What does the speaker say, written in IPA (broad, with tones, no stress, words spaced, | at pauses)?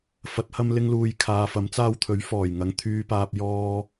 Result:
fɐ˨˥t̚hɐ˧m lɪ˧ŋluː˨j kʰaː˨˧fɐ˨˥mt͡saː˥w t̪ʰɵ˨˥ɥfɔː˨˩j ŋɐ˨˧ŋt̪ʰyː˧paː˧p̚ jɔː˥